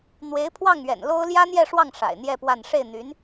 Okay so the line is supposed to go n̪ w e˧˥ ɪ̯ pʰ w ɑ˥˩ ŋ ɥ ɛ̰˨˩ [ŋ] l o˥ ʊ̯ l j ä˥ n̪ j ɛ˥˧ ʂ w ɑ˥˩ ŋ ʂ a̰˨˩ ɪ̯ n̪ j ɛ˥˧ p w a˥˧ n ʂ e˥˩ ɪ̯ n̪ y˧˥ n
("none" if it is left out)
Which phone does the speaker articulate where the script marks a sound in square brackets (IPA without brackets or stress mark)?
n